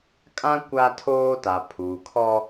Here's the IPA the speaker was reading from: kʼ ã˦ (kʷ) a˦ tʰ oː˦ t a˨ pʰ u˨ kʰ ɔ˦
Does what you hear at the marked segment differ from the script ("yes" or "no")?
no